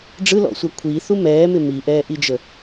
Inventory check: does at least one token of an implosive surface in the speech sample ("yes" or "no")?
no